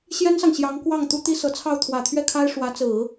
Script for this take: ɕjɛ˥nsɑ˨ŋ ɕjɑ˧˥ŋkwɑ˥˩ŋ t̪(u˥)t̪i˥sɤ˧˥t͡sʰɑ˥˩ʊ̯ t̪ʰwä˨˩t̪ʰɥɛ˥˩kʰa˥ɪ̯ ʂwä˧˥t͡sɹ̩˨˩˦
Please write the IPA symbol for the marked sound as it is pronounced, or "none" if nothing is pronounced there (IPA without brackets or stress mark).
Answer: u˥